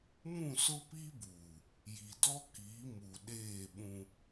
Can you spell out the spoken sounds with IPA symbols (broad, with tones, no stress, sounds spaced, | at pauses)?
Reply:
m ũ˦˨ s ʊ˦ p i˦ b uː˨ | j i˨ d ɔ˦ k iː˨˦ m u˨ ɗ eː˦˨ ɓ ũ˦